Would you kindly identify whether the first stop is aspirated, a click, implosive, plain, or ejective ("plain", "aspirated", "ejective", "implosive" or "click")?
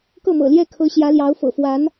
plain